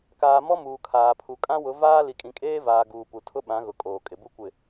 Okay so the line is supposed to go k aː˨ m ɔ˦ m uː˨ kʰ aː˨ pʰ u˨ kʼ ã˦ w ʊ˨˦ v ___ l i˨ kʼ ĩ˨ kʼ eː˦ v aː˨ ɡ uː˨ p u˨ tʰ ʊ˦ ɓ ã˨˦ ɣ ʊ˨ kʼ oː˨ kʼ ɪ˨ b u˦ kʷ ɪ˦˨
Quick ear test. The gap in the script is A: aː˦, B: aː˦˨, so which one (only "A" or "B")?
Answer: A